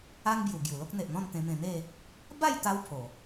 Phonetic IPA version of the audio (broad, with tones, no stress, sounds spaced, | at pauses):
a˦ ŋ b j u˨˩ ɡ j u˨˩ l o˦ k̚ n̪ e˨ ʔ n̪ ɔ̃˥˧ n t̪ ẽ˧ m ẽ˧ n̪ e˥˧ | b a˥˧ j t̪ a˧ w pʰ o˨˩